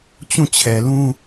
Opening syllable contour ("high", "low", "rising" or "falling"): falling